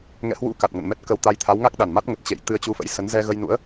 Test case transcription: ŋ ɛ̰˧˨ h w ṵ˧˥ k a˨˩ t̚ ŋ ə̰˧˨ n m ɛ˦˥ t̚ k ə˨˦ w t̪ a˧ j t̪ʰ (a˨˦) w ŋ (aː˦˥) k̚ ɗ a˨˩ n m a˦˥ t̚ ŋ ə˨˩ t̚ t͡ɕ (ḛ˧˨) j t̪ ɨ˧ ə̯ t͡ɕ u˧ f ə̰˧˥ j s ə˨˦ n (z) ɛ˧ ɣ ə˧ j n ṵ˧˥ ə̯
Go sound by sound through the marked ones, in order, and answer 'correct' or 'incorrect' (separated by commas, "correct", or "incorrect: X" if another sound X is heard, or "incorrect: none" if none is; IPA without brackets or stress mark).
correct, incorrect: a˦˥, correct, correct